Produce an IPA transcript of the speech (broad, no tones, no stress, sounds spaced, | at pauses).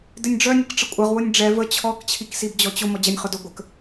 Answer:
d ɪ nʲ ɖ͡ʐ œ nʲ ə k ʈ͡ʂ ə kʷʼ ɐ ʁ w ʊ nʲ ɖ͡ʐ ɛ v ə t͡ɕʰ ɔ k t͡ɕʰ i k s i b d͡ʑ ɔ t͡ɕ ʊ m ɔ d͡ʑ ɐ nʲ χ ʊ d ʊ ɡʷ ə k